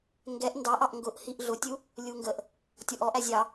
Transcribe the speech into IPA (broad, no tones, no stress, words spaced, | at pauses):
ŋɡɛʔ ndɑʔɑʔ ŋɡʊʔhiʔ ɮʊtʲu | lʲuŋɡəʔ | tʲɔʔɔʔ æzʲɑ